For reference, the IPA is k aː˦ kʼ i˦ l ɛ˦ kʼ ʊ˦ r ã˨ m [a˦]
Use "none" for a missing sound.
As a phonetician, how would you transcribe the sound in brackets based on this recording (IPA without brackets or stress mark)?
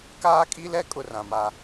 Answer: a˦